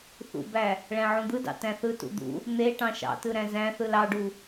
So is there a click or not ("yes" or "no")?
no